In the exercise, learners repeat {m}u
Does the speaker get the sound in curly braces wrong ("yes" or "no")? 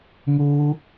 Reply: no